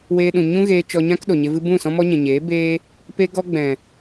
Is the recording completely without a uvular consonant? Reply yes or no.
yes